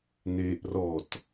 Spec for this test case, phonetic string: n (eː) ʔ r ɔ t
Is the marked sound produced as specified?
yes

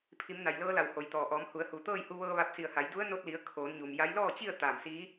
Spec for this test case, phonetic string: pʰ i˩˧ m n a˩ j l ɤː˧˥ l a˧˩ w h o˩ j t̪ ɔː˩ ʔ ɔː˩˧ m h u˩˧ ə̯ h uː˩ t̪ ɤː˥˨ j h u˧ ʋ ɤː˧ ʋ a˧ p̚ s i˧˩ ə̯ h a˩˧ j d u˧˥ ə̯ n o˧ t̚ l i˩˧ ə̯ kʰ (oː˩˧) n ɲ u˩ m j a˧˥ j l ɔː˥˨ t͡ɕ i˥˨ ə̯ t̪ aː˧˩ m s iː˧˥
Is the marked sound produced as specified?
yes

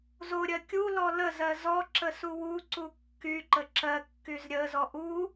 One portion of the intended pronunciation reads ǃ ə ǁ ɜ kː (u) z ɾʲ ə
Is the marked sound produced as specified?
no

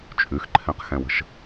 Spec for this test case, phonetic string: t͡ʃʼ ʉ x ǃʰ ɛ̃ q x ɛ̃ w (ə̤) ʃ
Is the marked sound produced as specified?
yes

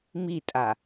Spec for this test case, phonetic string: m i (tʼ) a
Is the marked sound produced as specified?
yes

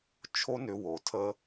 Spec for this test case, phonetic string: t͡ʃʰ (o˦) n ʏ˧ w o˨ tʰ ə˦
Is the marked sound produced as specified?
yes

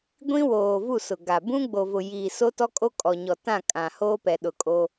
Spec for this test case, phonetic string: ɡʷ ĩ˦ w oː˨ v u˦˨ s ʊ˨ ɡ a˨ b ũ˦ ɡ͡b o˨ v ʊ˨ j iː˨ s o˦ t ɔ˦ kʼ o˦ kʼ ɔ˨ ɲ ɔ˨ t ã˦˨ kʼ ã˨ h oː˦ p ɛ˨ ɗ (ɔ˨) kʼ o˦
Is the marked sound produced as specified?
no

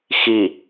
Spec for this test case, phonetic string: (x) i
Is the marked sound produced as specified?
yes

